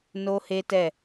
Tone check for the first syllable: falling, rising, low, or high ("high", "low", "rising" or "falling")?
high